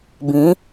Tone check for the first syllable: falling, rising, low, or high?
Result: rising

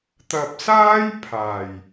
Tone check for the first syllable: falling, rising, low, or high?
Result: low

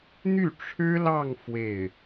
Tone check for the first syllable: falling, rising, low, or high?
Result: falling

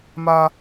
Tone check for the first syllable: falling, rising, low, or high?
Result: high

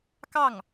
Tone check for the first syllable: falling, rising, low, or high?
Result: falling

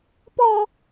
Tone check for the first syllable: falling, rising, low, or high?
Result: high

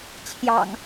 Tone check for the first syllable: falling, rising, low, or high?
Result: low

